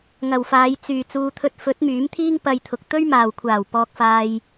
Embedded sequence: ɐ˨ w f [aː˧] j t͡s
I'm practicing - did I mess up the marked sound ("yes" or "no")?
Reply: yes